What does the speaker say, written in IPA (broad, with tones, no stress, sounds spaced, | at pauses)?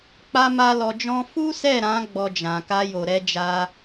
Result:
k͡p a˦ m a˦ l ɔ˧ d͡ʒ ɔ̃˦ f u˦ s ɛ˦˨ ɾ ã˨˦ ɡ͡b ɔ˧ d͡ʒ ã˨ k a˧ j o˨ ɾ ɛ˧ d͡ʒ a˧